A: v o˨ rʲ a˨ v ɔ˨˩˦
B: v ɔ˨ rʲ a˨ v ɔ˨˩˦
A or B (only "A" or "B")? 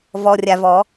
B